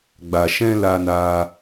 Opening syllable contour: low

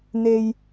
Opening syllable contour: high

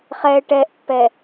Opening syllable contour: low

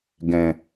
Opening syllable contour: low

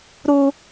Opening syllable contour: high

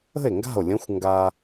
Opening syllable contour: falling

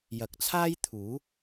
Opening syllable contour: rising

